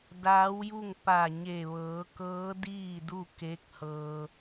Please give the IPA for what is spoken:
daː˧˥wju˥˨ŋ pa˧˩ɲe˧˩ ʋɤː˩˧kɤː˧˥ diː˥˨du˥˨ ke˧˥k̚hɤː˧

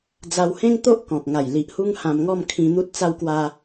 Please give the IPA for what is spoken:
d͡za˧whẽ˦ŋt̪o˦ʔ kɔ̃˨k̚ŋa˨˩j li˨ʔhu˦ŋ hã˧mŋɔ˥˧mkʰĩ˧n̪u˦t̚ t͡sa˧wkwa˧

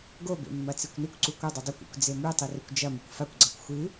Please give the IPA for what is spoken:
ɡobḛ mːɐt͡sikʷnɨkʷǀu kʷɐdˤɨ dˤokʷḭkʷ d͡zemʉtˤi rekʷd͡ʒɐmikʷ fakʷɡ͡ǀakʷ xʷɨ

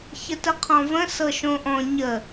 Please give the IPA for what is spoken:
çətəqʰɔ̃və̃ sɤʃõʔɔ̃ ɲə

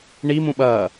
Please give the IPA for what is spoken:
ɳi mũɓɐː

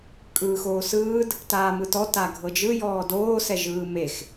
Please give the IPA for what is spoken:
kʼɯːxoːsɯːd | taːmɯtɔ taɡʱɤd͡ʒɯ jɔːdoː sɛʒɯːmex

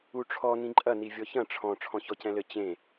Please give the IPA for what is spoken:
uʈ͡ʂʰɔ nĩǃʼɐ nivʲɔçɐ̃ ʈ͡ʂʰɔ̃ ʈ͡ʂʰɔ̃çɔcɛ̃lɘ t͡ɕẽ

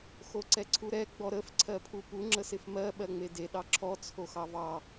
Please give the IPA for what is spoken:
xoǀɛǀʰuɾɛ ɡ͡bɔɾəf ǀʰɜpʰupu ŋ͡ǁəsɪfmɜ ɓɜŋ͡mede ɗɑǁʰɔ t͡sʰoxɑvɑ

